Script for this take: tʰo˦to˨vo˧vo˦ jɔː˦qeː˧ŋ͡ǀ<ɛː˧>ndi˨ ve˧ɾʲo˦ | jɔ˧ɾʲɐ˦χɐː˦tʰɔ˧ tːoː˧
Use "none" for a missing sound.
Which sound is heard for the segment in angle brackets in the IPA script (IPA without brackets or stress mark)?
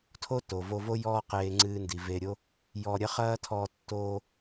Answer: ɨː˧